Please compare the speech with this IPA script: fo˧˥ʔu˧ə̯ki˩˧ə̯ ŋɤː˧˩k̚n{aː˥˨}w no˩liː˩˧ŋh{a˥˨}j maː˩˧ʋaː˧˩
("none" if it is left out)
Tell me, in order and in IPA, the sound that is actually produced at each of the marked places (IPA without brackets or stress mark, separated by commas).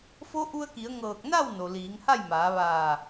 a˥˨, a˥˨